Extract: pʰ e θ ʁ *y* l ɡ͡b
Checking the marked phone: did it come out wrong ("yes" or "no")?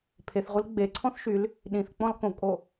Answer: yes